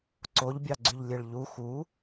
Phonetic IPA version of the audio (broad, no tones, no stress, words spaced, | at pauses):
ǀoʎbʲɑɡ͡ǀyʎlʲeɭ ʎu xu